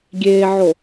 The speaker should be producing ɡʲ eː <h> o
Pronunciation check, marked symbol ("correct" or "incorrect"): incorrect